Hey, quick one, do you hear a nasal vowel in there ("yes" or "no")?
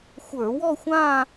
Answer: yes